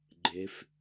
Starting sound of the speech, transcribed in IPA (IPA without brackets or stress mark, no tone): ɡ͡ǃ